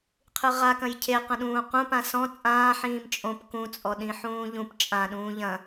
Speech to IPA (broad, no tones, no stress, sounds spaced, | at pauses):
qʰ ɨ ʁ a k ɐ̃ j cʰ e q ɐ̃ ɗ ũː q ũ p ã s ɔ̃ t͡sʼ ãː ħ ĩː m t͡ʃʼ õ p k ũ t͡sʼ ɔ ɗ ĩ ħ ũː ʎ ũ p t͡ʃʼ ã ɗ ũː ʎ ɐ̃